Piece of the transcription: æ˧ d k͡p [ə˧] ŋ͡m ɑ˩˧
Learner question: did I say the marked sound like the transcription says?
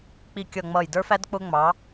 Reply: no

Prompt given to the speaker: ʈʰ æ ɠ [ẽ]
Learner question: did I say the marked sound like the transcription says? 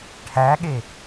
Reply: no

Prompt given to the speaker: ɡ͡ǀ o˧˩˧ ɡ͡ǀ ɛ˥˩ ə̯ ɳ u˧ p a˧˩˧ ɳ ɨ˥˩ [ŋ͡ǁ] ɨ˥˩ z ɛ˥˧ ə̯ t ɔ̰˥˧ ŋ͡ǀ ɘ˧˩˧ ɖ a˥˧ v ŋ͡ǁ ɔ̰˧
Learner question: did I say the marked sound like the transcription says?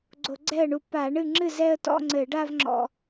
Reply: yes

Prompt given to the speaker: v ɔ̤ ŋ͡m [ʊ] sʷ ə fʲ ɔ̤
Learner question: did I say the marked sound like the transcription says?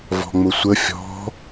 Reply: yes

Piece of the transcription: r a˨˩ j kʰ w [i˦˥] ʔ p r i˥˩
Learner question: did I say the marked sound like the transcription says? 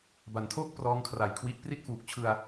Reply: yes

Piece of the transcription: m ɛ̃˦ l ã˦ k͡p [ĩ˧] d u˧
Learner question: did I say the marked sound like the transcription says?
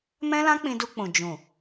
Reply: yes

